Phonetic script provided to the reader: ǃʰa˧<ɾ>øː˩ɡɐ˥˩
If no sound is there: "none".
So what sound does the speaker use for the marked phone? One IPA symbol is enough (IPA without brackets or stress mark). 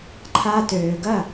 t